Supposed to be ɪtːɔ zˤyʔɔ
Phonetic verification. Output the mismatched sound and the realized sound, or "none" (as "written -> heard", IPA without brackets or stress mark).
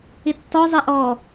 y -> e